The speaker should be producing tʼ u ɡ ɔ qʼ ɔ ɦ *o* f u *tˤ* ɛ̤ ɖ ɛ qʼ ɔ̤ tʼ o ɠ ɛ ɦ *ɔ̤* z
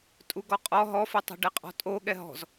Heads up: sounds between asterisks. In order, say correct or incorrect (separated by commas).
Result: incorrect, correct, correct